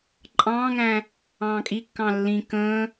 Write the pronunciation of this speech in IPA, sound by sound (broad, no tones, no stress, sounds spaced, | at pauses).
ǃʼ ɑ̃ː ŋ æ̃ | ɑ̃ː kʼ i kː ɑ̃ lː ĩ k ə̃ː